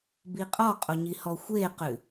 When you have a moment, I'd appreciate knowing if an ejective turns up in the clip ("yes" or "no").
yes